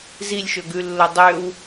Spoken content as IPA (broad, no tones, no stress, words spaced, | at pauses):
zilʲʃɵɡʉlːo dˤøw